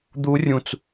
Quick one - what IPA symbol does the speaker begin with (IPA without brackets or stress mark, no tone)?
d̪